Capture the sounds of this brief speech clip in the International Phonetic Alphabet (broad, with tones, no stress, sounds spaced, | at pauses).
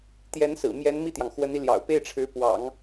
t̪ j ɛ˧˥ n s ɹ̩˨˩ m j ɛ˧˥ n m i˥˩ t̪ j ɑ˩ ŋ x w ə˧˥ n i˧ l j ɑ̰˨˩ ʊ̯ p e˥˩ ɪ̯ ʈ͡ʂʰ ɻ̩˧˥ p w ɑ̰˨˩˦ ŋ